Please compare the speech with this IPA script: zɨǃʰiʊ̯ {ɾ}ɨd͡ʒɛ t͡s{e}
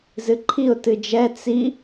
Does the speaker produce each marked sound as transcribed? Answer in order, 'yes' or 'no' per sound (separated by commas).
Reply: no, no